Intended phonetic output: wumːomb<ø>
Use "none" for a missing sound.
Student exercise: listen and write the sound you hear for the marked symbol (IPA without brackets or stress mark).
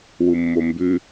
ʉ